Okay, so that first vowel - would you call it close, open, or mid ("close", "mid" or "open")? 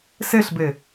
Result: mid